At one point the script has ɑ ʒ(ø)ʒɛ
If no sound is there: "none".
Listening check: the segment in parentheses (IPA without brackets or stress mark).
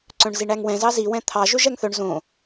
ø